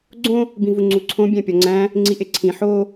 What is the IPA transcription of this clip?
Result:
ɡ͡ǀ õ | b ĩ v u ŋ͡ǀ u ǀʰ õ bʲ æ̃ pʲ ɒ ŋ͡ǀ æ̃ | ŋ͡ǀ i ʔ e ǀʰ ĩ ħ o

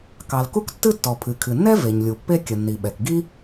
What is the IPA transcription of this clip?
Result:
k ɑ˩ l k u˥ k tː ɨ˥ tː ɔ˩ pʰ ɨ˩ kʰ ɨ˩ nː ɛ˥ v e˩ ɲ lʲ u˩ pː e˥ kʲ ə˩ nː i˩ ɓ ɛ˩ k ɡ i˥

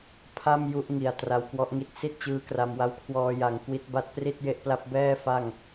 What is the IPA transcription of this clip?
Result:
pʰ a˥˩ m j u˦˥ ʔ ŋ i˨˩ a̯ t r a˧ w k w ɔ˦˥ ʔ ŋ i˦˥ t̚ s i˥˩ t̚ t͡ɕ ɯː˦˥ k r a˧ m w a˦˥ w kʰ w ɔː˧ j a˨˩ ŋ k w i˦˥ t̚ b a˦˥ t̚ p r i˥˩ t̚ j e˦˥ ʔ p l a˦˥ p̚ b ɛː˥˩ f a˥˩ ŋ

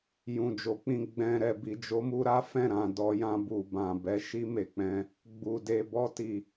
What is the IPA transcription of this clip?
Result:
j ũ˨ d͡ʒ o˨˦ k͡p ĩ˧ ɡ͡b ɛ̃˨ ɾ ɛ˨ b i˨ d͡ʒ o˨˦ m u˧ ɾ a˦ f ɛ̃˦˨ ɾ ã˨ d ɔ˧ j ã˧ b u˨ b ã˨ b ɛ˨˦ ʃ i˧ m e˨ k͡p ɛ̃˧ | ɡ͡b u˨ d e˨ b ɔ˧ t i˨

